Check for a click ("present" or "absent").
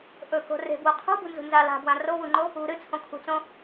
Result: present